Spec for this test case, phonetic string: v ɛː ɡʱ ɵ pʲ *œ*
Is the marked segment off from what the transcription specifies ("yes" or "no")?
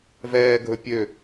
yes